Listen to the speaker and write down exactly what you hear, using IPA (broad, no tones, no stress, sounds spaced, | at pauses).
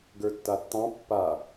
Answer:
ɡ ə˞ tː a tː ɑ̃ pː a